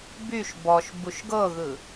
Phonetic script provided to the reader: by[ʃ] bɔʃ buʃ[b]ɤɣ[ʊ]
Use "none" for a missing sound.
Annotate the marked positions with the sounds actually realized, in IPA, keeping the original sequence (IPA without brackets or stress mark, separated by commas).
ʃ, ɡ, ɯ